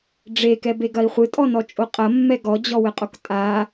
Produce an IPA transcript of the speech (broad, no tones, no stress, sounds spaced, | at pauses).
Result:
ɖ͡ʐ e k ɛ b e ɡ ɐ i̯ χʷ ɨ tʼ ɔ n ɔ t͡ʃʼ o qʼ ɐ mː ɛ ɡ ɔ d͡ʑ ɔ w ɘ qʼ o k tʼ a